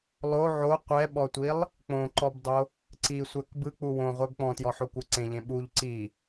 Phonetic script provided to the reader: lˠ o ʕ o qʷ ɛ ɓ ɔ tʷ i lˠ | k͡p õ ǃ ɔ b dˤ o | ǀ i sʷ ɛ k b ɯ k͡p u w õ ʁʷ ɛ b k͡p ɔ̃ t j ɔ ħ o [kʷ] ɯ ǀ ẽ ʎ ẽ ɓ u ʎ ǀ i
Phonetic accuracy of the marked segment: correct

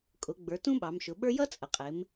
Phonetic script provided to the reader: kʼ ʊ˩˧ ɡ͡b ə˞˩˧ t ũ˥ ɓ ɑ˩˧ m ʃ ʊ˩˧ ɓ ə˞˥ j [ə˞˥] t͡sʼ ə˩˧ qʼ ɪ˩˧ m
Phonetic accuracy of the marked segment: incorrect: ʌ˥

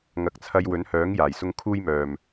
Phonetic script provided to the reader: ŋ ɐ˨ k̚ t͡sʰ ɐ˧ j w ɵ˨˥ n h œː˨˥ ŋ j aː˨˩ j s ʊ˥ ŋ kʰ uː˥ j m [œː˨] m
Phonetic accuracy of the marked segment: correct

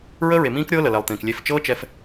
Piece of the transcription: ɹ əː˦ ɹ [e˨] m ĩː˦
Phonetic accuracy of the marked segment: correct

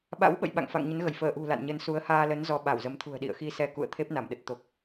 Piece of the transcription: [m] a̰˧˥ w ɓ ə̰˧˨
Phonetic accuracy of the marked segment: incorrect: ɓ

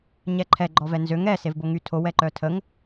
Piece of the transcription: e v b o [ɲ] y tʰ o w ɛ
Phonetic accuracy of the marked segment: incorrect: ŋ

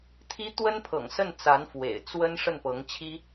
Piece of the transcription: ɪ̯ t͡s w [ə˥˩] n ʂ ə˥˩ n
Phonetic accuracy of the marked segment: incorrect: ə˥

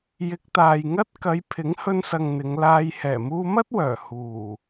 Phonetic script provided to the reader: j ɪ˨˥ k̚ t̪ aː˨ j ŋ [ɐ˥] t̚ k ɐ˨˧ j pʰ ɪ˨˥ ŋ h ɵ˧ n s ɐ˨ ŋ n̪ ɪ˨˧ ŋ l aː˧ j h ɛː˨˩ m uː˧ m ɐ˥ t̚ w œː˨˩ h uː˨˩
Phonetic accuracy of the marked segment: correct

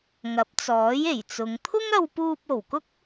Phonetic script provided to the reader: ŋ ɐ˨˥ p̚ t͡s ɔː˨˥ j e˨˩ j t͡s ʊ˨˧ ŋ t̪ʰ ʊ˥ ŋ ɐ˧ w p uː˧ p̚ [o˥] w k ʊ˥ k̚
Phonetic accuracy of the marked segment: incorrect: o˨˩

